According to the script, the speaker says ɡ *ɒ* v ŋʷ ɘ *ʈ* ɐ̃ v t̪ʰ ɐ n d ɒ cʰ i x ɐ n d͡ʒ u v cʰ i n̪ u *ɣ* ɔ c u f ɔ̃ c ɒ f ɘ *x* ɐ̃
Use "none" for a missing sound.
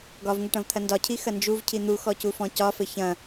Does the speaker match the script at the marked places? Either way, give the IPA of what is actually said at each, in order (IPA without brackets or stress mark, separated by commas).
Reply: ɒ, ʈ, x, ç